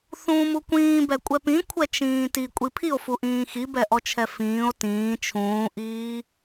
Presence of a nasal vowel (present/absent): present